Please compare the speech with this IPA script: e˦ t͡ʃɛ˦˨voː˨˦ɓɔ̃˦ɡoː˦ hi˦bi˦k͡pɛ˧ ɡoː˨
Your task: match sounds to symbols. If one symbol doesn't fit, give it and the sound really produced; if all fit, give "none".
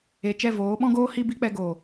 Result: e˦ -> e˨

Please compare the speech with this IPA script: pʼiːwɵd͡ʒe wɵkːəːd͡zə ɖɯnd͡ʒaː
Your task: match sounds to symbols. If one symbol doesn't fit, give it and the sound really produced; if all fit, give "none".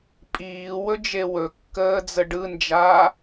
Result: none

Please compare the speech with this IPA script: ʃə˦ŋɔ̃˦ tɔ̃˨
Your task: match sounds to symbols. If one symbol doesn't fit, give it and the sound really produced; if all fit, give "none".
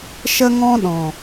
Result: t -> ɗ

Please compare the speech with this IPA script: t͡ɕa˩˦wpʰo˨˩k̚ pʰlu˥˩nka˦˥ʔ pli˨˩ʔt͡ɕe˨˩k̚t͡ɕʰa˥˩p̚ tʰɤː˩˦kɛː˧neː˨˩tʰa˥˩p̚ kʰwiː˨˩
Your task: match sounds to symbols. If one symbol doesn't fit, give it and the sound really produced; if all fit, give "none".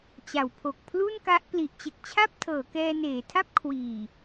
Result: none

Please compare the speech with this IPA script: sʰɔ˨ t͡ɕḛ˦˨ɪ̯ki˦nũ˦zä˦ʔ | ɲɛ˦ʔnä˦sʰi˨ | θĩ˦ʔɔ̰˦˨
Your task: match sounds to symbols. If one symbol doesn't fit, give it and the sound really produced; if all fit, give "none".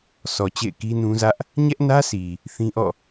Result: none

